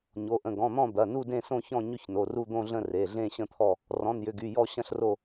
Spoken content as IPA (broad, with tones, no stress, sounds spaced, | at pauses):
ɲ o˩˧˩ ʔ ə̃˩˧˩ ɡ ɔ̃˩˧˩ n̪ ɔ̃˦˨ d̪ ɐ˩˧˩ n u˦˨ d ẽ˦˨ s õ˦˨ ç ɔ̃˦˨ ɲ ʏ˦˨ ç n o˩˧˩ r u˦˨ d̪ õ˦˨ ɮ ə̃˦˨ r e˩˧˩ ɮ ẽ˦˨ ɕ ə̃˦˨ t̪ʰ ɔ˦˨ | r ɔ̃˩˧˩ n j ʏ˩˧˩ ɡ y˩˧˩ j ɔ˦˨ ɕ ɐ̃˦˨ ɬ r o˦˨